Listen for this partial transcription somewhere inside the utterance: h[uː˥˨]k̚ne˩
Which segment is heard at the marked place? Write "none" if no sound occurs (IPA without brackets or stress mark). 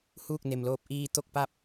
uː˥˨